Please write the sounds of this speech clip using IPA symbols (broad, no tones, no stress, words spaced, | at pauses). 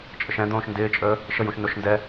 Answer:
t͡ʃʼəʃɛ̃d̪õːʃ ndɪːt͡ʃʼəː | ʃəjũʃ noʃndɛ